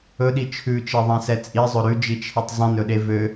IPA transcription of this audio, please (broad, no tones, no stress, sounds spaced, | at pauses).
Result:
ɵ ɗ i t͡ʃʰ ʉ t͡ʃ e ðˤ ɛ̃ s ɛ t͡sʼ i zˤ ɵ ɾ ʉ d͡ʒ i t͡ʃʰ e tˤ zˤ ĩ n ɵ ɗ e v ø